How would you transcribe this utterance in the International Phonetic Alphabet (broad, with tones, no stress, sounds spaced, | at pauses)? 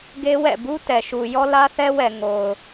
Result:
ɡ e˦ w ɛ̰˦˨ b u˦ t ɛ˨ ʃ u˨ j ɔ˦ l ä˦ θ ɛ˦ w ɛ˨ ŋ o˨ ʊ̯